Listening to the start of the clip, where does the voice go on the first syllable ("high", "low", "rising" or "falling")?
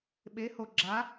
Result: rising